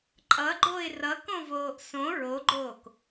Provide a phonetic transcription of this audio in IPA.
ǃʼʌɡ͡ǃoɪ̯ rʌkõvoːʔ sõ ɹoɡ͡ǃoːk

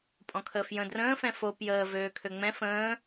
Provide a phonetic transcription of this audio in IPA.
pʼɔ̃kʰəːfjə̃ drə̃ːfɛ̃ fo pjəːvøː kʰøŋ͡mɛ̃ fə̃ː

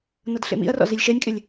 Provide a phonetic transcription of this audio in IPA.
nɤdɬḛmḭɐ̯rɔ̰ zilʲʃɛnʲkʼɪlʲ

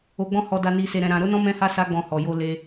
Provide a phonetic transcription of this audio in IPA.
o˧ɡ͡bɔ̃˦hɔ˧da˧ ni˧se˧ɾɛ̃˧ ɾã˧ ɾo˦nɔ̃˦ mɛ̃˦ha˦ sa˦ɡ͡bɔ̃˧hɔ˨ jo˧ le˧

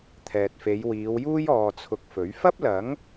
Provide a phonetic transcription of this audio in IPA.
t̪ʰɛː˨t̚fe˨˧j wiː˨˧wjuː˥j ɔː˨t͡sʰʊ˨k̚ fɵ˨˥ɥ fɐ˥p̚lɐ˨˥ŋ

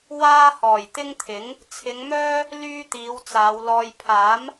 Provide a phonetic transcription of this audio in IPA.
waː˥ hɔː˨˩jt̪ɪ˥ŋt̪ʰɪ˨˥ŋ | t͡sʰɪ˨˧ŋmœː˥ | lyː˥t̪iː˨˧wt͡saː˨˧wlɔː˧j pʰaː˨˥m

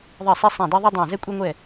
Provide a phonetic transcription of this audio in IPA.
ðˤe˧˩sˤi˧ sˤæ̃˧˩dɛ˧ðˤi˧dˤæ̃˧˩ zɛ˧kʷʼɛ˧ŋʷɛ˧˩

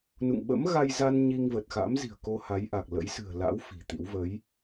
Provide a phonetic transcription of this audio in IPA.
nṵ˧˨ŋɓə̰˧˥mɣa˧j za˧n ɲi˧ŋvə˨˩t̚xa̰˧˥mzi̤˨˩ə̯ ko˧ ha˨˦jʔa˨˩k̚lə̰˧˥j sɨ̤˨˩ə̯la̰˧˥w fi̤˨˩t̪ḭ˧˥w və˨˦j

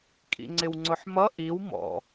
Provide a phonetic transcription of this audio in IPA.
kʼḭŋ͡ǀɪwŋ͡ǀʊħmʌ ʔiw mɔ̰

